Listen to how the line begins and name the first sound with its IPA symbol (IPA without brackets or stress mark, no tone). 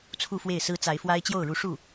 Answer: t͡sʰ